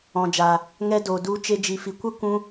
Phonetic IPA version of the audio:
ɔ̃˨ d͡ʒ aː˨ | ŋ ɛ˦ d o˨ d u˨˦ t͡ʃ e˧ d͡ʒ i˨ f i˨ kʷ ə˦ kʷ ũ˧

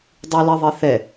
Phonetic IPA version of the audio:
dˤ ʉ l ɛ ðˤ e θ ɛ

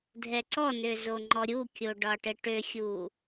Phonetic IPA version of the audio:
dʱ ɛ ǀ ɔ n ø z o ŋ͡ǃ ɔ ɾʲ u kʲ o ɖ ɒ ʈ ɘ ʈ ø xʲ u

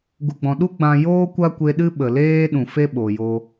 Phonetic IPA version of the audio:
ɡ u˨ ɡ͡b ɔ̃˨ ɗ u˦ ɡ͡b ã˧ j oː˦ kʷ a˦ kʷ e˧ ɗ ɨ˦ ɓ ə˨ l eː˦ ɗ ũ˨ f e˦ ɓ o˨ j o˧

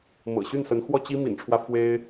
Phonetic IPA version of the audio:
m ɤ̰˨˩ ɕ y˥˩ n s ə˧˥ n x w ɔ˥˩ t͡ɕ i˥ m ḭ˨˩ n ʈ͡ʂʰ w ä˦ f w e˥ ɪ̯

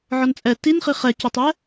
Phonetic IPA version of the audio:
ʕ ɔ n t͡sʼ ɛ t i n χ i χ ɛ c ə tˤ ɛ

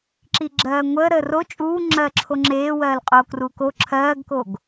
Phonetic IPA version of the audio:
ǁ i ɡ͡ǁ ɜː ŋʷ əː ɾ əː r o t͡ʃʼ uː ŋ͡ǁ ɜː ǁʰ o ŋ͡ǁ eː w ɜː l qʼ oː k r u k o ǁʰ ɜː ɡ k o ɡ

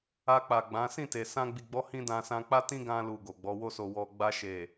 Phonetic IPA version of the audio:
a˧ k͡p a˨ ɡ͡b ã˨˦ s ĩ˦˨ t e˨ s ã˧ ɡ͡b i˨ ɡ͡b ɔ˨˦ h ĩ˧ d ã˨ s ã˧ k͡p a˦ t ĩ˦ ɡ ã˧ l u˨ ɡ o˨ ɡ͡b ɔ˨˦ w o˦ s o˧ w ɔ˨ ɡ͡b a˧ ʃ e˨

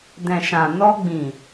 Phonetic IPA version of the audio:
d ɛ̃˨ ʃ ã˨ n ɔ˧ ɡ͡b ĩ˨

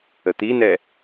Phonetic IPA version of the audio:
ə t̪ i n ɛ

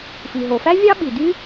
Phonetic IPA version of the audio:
f i˩ ɦ o˩ f æ˥ vʲ ɑ˥ ɓ i˩ d y˥

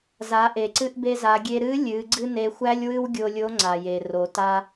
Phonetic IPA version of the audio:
z a˩˧ ʔ e˩ ǀ ɨ˧ ʔ b e˧ z a˩˧ ɡʲ e˧ ɾ ɨ˧˥ lʲ ɨ˩˧ ɡ͡ǀ ɨ˥ n e˧ xʷ æ˥ lʲ w ɨ˥ w ɡʲ o˧ lʲ o˧˥ ŋ͡ǀ a˩ j e˩ r o˩˧ t a˥

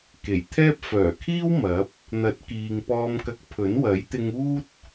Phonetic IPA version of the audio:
k e˨˩ j t̪ʰ ɛː˥ p̚ f œː˨˩ kʰ iː˥ w m ɐ˨˥ p̚ | n̪ ɐ˨˥ t̚ k iː˨ ŋ p ɔː˧ m k ɐ˧ k̚ pʰ ɵ˨˥ n w ɐ˨˥ j t̪ ɪ˧ ŋ uː˥ t̚

